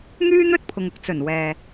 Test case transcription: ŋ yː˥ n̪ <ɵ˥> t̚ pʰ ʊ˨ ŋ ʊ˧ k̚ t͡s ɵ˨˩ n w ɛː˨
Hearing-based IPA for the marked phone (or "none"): ɵ˥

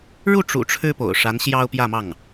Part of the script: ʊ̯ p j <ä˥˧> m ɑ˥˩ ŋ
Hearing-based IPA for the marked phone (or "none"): ä˥˧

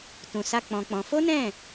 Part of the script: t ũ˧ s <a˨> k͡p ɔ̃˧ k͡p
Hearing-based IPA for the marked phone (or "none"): a˦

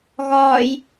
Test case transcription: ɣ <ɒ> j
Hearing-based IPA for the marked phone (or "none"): ɒː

